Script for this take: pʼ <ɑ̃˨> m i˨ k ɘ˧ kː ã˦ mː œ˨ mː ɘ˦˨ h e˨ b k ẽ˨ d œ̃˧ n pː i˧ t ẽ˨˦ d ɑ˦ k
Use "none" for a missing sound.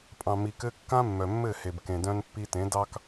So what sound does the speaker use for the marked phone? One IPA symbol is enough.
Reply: ɑ̃˨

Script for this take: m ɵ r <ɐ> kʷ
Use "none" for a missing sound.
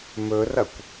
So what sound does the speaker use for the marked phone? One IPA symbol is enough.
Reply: ɐ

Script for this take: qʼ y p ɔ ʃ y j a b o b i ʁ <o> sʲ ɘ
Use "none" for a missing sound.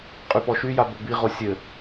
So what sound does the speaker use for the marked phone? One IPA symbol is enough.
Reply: o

